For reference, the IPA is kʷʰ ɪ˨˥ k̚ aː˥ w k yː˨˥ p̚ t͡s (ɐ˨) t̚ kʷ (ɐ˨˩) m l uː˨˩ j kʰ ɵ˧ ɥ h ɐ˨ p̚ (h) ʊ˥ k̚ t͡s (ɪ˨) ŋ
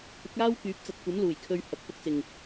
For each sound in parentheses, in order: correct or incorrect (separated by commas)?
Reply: correct, incorrect, correct, correct